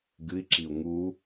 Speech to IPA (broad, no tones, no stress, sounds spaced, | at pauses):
ɡ ɨ i̯ ǁ i u̯ ŋ u